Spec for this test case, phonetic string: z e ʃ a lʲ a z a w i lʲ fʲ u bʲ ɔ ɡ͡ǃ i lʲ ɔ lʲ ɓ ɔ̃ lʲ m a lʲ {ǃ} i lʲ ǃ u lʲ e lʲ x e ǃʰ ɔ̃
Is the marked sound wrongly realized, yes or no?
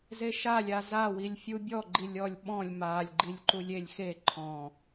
yes